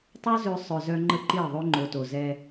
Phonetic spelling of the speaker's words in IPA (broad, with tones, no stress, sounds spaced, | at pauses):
tˤ o˦ z ø˧ sˤ œ˨ z œ˧ ŋ͡ǃ ə˦ ǃ i˦˨ ðˤ ø˦ ŋ͡ǃ o˨ t o˨ z ɛ˧